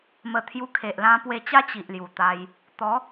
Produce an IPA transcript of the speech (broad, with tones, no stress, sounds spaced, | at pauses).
m ə˨˩ t̪ʰ j u˧ kʰ e˨ ʔ l ã˧ p w e˧ t͡ɕ a˦ t͡ɕ i˨ ʔ l j u˨˩ t̪ a˧ j | t̪ ɔ˨˦